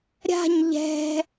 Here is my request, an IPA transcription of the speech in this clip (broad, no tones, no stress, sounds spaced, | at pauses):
ɾʲ a̤ ɲ ʎ ɛ̤